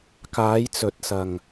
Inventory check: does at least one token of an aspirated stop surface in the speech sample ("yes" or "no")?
no